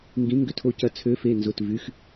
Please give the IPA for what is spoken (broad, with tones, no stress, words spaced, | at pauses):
ŋɡĩ˨˥ŋɡʏ˧tʰo˧cɐ˧ t͡sʰø˨˥fe˩˧˩ nzʊ˩˧˩tvy˩˧˩x